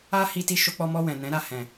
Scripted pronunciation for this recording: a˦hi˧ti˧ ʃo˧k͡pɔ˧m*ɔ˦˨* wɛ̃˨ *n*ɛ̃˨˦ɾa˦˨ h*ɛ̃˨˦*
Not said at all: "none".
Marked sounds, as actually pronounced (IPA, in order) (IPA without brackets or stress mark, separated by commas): ɔ˧, n, ɛ̃˨